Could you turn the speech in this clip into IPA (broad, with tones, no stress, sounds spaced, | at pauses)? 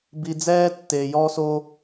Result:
b i˧ d͡z ɛː˥ tː e˧ j ɔ˥ s o˥